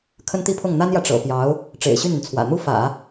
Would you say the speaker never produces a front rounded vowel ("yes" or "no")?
no